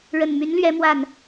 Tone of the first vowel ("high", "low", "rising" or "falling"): low